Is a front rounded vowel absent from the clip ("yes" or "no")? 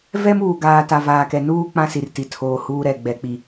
yes